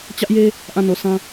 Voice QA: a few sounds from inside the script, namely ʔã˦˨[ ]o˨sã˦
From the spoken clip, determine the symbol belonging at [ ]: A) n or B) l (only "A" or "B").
A